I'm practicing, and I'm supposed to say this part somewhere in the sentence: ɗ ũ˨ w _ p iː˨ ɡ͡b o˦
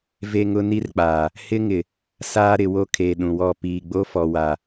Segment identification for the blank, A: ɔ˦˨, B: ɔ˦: A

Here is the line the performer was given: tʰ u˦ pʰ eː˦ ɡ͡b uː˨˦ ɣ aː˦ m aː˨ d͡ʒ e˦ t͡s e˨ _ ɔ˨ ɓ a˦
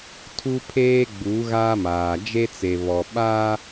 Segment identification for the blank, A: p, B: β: B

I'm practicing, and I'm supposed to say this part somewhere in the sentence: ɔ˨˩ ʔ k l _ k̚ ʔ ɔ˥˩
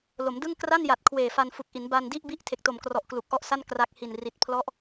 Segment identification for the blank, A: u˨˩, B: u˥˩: A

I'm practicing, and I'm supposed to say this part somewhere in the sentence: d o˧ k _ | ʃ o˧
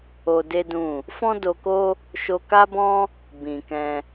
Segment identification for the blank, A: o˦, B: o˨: A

